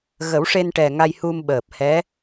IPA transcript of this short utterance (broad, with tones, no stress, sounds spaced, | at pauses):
ɣ ə˨˩˦ w ʂ e˧ n ʈ ɛ˨˩ ŋ a˧ j h u˧ m ɓ əː˨˩ p̚ h ɛ˧˥